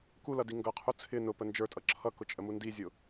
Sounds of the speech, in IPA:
k u l ʌ d i ŋ ɡ ʌ qʰ u t͡sʰ ɪ n ʊ p ə n d͡ʒ ə˞ tʼ ʌ ǁʰ ʌ k ʊ t͡ʃʼ ə m u n d i zʲ ʊ

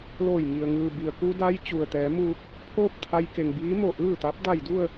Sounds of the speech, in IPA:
l oː˧˩ j ŋ i˩ ə̯ ŋ ɯː˩ b i˩ ə̯ k u˧ d a˧ j t͡ɕ u˩ ə̯ t̪ ɛː˩˧ m uː˧ k̚ | pʰ oː˥˨ p̚ t̪ʰ a˧ j k e˩ ŋ b iː˧˥ m o˧˩ ʔ ɯː˥˨ t̪ a˧˥ p̚ d a˧˩ j d u˥˨ ə̯

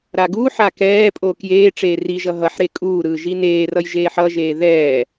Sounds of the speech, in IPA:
ɾ a ɡ u ħ a k ɛː pʼ o k j eː ʈ͡ʂ eː r i ʒ ʌ ɦ ʌ ħ ɾ e kʼ uː ɾ ɯː ʒ i n eː r ʌ j ʒ eː ħ ʌ ʒ eː ð ɛː

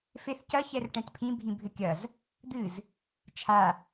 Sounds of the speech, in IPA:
f e θ c ɐ ç ɛ r ʈ ɛ̃ t pʰ ĩ bʱ ĩ bʱ ɘ kʲ ɐ z | d̪ ɨ z | t͡ʃʰ a

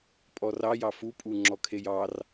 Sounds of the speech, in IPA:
pʼ ɔ r ɑ j ɑ f u pʼ u ŋ͡ǁ ɔ kʰ e j ɑ r

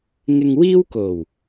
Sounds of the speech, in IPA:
ŋ ɪ˧ ŋ w iː˥ w k o˨˩ w

